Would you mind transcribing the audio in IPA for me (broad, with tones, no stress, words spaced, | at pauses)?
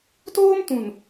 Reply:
toː˦mtũ˨n